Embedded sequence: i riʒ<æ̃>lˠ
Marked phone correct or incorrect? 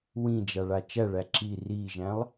correct